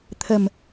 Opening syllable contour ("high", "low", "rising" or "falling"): low